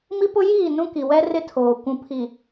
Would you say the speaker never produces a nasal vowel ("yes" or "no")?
no